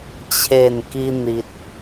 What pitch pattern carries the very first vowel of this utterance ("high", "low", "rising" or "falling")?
falling